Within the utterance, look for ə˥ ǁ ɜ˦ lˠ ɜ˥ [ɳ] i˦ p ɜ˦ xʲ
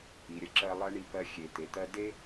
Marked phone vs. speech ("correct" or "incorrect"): correct